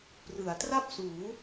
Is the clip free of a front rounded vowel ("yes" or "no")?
yes